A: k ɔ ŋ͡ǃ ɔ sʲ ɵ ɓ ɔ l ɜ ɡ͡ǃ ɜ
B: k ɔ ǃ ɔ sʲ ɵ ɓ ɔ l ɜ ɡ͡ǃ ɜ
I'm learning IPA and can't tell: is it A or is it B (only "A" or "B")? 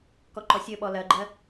B